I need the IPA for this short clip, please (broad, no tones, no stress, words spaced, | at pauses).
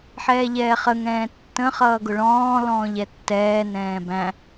ħɛːʎɛːχəŋ ɛ̃ːtːə̃ χʌːɡʊɭɔ̃ː lɔ̃ːʎɛtːɛː nɛ̃ːbæ̃